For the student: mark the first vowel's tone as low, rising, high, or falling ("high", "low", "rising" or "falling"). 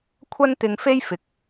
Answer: high